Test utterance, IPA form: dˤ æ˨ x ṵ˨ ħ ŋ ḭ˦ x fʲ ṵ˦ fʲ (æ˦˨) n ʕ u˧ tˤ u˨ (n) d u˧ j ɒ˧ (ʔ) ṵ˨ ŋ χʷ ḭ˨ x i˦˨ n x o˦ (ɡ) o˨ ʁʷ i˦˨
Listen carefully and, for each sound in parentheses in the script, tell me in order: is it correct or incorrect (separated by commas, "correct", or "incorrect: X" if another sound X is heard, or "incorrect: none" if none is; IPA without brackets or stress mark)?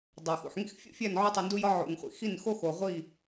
correct, correct, incorrect: ʕ, incorrect: x